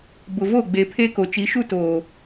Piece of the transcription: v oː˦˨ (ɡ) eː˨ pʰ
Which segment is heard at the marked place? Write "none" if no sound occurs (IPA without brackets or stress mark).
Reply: ɡ͡b